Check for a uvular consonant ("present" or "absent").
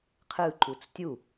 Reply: present